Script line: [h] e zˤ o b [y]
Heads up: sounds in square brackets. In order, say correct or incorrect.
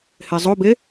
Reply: correct, incorrect: e

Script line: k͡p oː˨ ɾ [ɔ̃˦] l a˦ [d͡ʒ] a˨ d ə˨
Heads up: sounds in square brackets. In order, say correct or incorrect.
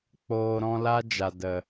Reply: incorrect: ɔ̃˧, correct

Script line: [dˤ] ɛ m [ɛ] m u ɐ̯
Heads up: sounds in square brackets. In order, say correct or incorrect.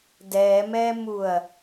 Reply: incorrect: d, correct

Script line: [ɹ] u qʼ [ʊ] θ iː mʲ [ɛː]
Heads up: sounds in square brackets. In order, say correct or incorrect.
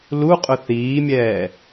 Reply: incorrect: l, correct, correct

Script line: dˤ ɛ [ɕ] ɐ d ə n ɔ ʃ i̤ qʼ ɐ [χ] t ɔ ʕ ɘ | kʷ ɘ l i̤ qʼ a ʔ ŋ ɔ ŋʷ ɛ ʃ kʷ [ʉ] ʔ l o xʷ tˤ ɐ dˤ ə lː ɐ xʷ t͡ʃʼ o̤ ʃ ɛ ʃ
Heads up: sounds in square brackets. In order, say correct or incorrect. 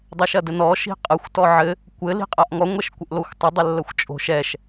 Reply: incorrect: ʃ, incorrect: xʷ, incorrect: ɘ

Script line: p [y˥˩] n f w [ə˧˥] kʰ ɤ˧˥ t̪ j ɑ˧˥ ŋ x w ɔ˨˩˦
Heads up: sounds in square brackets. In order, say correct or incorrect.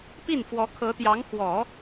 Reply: incorrect: i˥˩, incorrect: ɔ˧˥

